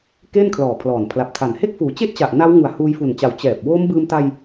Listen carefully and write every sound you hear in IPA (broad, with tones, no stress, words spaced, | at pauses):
keː˥˩nkʰlɔː˨˩pʰlɔː˨˩n pʰla˨˩p̚tʰa˨˩n he˥˩k̚fuː˩˦t͡ɕe˥˩ʔt͡ɕa˨˩ʔ na˦˥w ŋu˨˩a̯huː˧jfu˨˩nt͡ɕa˨˩w t͡ɕɛː˨˩p̚ woː˦˥m bɯː˧mta˧j